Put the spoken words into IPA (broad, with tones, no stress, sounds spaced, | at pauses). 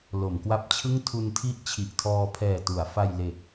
l o˩˦ m k w a˦˥ p̚ t͡ɕʰ ɯ˥˩ ŋ tʰ u˧ n tʰ i˦˥ ʔ t͡ɕʰ i˨˩ ʔ tʰ ɔː˧ pʰ ɛː˨˩ t u˩˦ a̯ f a˧ j l e˨˩ k̚